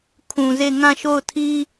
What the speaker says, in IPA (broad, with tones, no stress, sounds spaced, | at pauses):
kʰ ũ˨ z e˦˨ ŋ ã˦˨ ʃ o˦˨ ʊ̯ tʰ i˦